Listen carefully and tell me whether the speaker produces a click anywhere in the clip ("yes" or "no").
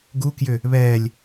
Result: no